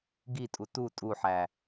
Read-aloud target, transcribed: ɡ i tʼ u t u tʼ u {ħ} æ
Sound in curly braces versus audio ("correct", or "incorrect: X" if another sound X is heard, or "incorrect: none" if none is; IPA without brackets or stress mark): correct